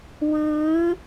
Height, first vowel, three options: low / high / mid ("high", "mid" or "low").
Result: high